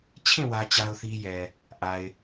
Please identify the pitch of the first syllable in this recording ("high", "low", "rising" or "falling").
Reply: falling